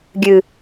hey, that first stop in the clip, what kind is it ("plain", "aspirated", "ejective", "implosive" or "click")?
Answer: plain